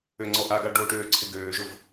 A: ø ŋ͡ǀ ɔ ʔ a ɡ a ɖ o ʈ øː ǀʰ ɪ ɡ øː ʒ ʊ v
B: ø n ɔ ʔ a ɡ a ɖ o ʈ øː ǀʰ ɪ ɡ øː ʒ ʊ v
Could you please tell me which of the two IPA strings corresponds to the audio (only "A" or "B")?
A